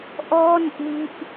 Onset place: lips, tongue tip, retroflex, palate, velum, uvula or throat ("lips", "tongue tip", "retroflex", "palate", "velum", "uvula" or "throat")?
throat